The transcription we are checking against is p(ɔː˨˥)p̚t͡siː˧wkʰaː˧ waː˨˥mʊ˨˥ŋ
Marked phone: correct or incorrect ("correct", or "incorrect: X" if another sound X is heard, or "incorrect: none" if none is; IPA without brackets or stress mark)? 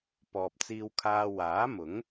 incorrect: ɔː˨